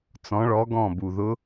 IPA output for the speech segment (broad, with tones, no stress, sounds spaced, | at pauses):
t͡s ɔ̃˩˧ ɭ ɔ˩˧ ɡ ɔ̃˧˩ b u˩ ð ʊ˧˥